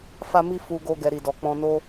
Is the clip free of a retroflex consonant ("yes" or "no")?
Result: yes